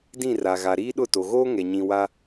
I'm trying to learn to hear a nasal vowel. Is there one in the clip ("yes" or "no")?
yes